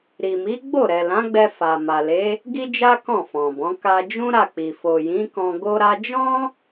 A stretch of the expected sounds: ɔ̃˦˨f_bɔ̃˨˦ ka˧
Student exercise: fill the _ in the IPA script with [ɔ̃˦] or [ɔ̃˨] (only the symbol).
ɔ̃˨